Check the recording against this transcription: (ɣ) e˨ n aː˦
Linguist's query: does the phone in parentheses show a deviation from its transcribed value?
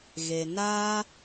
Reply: no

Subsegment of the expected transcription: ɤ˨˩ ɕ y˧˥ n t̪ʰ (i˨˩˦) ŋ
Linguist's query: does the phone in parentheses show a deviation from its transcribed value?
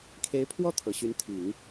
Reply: no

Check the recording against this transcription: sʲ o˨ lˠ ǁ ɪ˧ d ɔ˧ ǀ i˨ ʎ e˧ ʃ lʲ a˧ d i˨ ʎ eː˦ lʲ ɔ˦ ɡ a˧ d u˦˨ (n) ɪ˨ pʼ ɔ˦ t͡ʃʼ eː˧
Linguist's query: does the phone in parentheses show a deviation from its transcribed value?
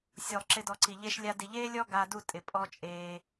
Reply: yes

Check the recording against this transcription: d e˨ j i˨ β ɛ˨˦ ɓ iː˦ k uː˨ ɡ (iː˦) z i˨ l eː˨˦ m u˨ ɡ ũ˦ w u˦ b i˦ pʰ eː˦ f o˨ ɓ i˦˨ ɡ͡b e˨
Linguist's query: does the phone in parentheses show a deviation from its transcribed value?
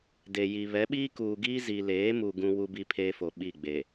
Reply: no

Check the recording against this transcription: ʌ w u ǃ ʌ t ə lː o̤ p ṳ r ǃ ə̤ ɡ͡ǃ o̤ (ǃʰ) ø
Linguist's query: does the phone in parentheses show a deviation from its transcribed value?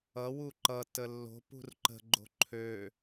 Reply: no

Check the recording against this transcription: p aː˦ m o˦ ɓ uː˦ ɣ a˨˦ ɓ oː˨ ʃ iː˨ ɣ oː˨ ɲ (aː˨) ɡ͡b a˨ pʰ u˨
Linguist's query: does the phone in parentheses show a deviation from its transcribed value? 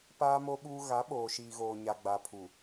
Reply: yes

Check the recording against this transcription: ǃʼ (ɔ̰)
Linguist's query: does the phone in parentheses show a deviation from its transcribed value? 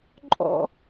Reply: no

